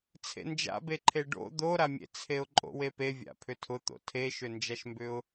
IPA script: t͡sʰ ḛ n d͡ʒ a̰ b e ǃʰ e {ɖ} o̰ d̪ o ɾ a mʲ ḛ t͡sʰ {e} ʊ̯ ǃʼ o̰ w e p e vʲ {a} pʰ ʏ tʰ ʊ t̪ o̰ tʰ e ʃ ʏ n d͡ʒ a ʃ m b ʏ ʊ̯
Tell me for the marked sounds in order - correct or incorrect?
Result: correct, correct, incorrect

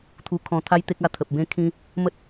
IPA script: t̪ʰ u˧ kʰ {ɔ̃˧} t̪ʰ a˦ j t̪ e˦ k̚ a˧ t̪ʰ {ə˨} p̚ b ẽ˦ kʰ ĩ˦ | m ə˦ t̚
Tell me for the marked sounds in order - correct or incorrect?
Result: correct, correct

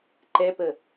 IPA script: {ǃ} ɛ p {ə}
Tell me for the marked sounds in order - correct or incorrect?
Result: correct, correct

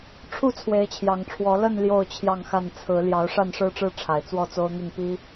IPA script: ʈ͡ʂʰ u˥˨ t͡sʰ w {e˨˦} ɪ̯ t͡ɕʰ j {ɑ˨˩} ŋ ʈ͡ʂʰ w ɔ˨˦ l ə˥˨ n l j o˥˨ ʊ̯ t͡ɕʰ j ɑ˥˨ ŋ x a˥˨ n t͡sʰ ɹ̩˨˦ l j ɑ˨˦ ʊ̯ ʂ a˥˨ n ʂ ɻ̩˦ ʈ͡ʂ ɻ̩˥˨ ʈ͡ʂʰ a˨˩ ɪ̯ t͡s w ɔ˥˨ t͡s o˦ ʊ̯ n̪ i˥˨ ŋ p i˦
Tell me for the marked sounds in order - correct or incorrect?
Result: correct, correct

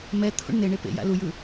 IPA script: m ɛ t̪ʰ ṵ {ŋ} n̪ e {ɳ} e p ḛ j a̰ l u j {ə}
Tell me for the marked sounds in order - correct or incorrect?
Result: incorrect, correct, incorrect

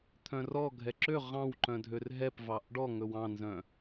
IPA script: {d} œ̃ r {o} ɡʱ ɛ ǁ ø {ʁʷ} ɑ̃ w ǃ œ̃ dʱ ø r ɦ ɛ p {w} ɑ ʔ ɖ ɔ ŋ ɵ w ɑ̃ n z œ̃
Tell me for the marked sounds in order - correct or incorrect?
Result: incorrect, incorrect, incorrect, incorrect

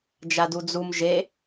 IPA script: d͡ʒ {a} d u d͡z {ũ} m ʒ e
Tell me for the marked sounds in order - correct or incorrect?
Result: correct, incorrect

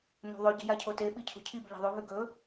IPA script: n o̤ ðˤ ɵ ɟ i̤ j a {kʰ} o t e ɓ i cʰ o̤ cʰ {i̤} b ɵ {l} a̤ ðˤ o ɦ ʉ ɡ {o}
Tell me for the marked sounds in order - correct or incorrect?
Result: incorrect, incorrect, incorrect, incorrect

